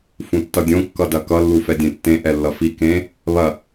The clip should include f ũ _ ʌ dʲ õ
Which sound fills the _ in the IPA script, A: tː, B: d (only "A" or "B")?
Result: A